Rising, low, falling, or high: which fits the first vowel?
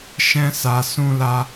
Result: high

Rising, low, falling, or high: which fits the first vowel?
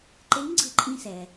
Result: rising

